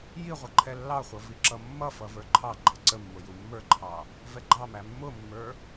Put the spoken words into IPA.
j i ʁʷ ʌ ǃʰ ɛ lː ɑ χʷ ʌ v i ǁ ʌ mː ʌ f ʌ v ə˞ ǃʰ ɑ ɡ͡ǃ æ ǀ ə mː ʊ j u mː ə˞ ǃʰ ɑ | v ɛ ɡ͡ǃ ɑ m æ mː ʊ mː ə˞

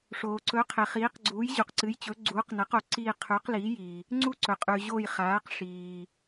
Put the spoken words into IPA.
ʂ oː˩ ǀ ɵ˩˥ qʰ e˩ χ iː˩˥ q ɡ͡ǀ uː˩˥ j ʑ u˩ q ǀ ɨ˩˥ j t͡ɕ ɵ˩˥ ɡ͡ǀ uː˩˥ q n ɐ˩˥ q o˩ ǀ iː˦˨ qʰ ʉ˩˥ q l iː˩˥ j i˩ | ŋ͡ǀ u˦˨ ǀ ɵ˩ qʼ ʉ˩ ʑ o˦˨ j χ aː˩˥ q ʂ iː˩

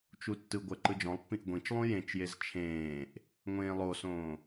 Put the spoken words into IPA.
t͡ʃ u tː ɯ ɡʷ ɜ ǃ ɯ d͡ʒ ɔ̃ lˠ pː ĩ ʔ ɡʷ ĩ t͡ʃ lˠ ũ j ẽ t͡ʃ j e z t͡ʃʰ ẽː ʔ | ŋʷ ẽː lˠ o s õː

